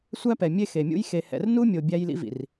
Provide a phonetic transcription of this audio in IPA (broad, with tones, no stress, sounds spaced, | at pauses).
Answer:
sʷ æ˦ p ɛ˨ mʲ e˦ x e˨ mʲ ṵ˦ j x e˨ h ɛ̰˨ r n u˦ mʲ o˨ bʲ æ˦ j l ḭ˦ v ḭ˨ r